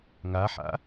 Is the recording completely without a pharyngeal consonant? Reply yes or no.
no